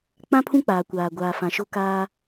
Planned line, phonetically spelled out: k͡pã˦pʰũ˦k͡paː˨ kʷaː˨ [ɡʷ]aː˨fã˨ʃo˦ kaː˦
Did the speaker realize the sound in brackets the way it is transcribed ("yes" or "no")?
yes